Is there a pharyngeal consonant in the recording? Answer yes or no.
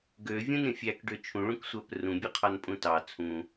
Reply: no